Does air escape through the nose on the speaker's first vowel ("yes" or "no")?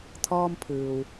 no